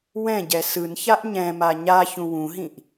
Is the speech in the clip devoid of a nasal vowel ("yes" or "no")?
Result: no